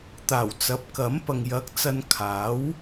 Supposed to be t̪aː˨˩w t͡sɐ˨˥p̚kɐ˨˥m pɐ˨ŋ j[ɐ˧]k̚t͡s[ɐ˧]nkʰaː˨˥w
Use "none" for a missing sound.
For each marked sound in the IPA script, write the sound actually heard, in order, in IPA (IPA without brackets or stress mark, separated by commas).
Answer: ɐ˨˥, ɐ˧